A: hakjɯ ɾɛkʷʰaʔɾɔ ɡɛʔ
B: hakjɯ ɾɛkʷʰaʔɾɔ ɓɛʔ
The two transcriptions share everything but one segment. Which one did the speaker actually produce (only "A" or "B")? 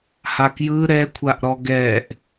A